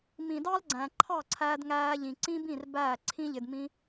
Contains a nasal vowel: yes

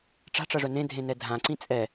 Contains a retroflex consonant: yes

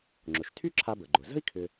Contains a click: yes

